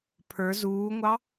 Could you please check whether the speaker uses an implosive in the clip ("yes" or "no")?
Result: no